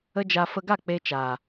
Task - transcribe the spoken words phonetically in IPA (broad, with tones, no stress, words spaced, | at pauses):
ə˦d͡ʒa˧ fə˧ɡa˦˨ k͡pe˦t͡ʃaː˨